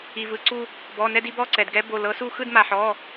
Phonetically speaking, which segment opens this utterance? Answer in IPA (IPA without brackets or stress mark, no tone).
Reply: i